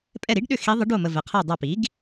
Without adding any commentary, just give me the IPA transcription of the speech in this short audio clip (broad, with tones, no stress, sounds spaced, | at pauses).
pʼ ɛ˦˨ ɾ i˧˥ ɖ ɗ ʏ˦˨ x i˧˥ ðˤ ə˧˥ ɖ o˦˨ m ə˨ v ɛ˨ qʰ ɜ˦˨ dˤ a˦˨ p i˩˥ ɡ